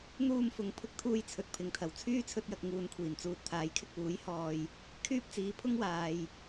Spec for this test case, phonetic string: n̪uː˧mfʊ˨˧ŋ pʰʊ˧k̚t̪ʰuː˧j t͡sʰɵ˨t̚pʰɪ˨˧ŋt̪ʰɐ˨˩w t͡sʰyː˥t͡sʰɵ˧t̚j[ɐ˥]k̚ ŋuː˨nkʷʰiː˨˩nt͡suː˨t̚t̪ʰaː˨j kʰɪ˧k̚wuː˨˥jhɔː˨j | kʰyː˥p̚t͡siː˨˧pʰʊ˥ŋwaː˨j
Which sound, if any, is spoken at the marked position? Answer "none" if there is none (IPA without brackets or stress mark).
ɐ˨